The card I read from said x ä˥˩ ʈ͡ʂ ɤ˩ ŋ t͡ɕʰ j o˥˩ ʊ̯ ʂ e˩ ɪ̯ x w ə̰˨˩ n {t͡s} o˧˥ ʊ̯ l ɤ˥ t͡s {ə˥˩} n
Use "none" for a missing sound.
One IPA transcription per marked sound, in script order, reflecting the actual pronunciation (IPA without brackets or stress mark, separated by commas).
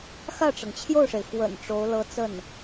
ʈ͡ʂ, ə˥˩